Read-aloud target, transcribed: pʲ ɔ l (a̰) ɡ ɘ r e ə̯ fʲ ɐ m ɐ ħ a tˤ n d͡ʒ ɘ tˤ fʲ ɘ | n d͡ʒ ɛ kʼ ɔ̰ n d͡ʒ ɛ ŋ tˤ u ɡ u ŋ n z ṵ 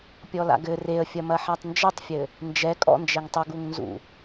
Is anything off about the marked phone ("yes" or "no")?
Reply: no